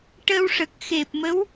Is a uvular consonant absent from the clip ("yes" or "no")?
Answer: yes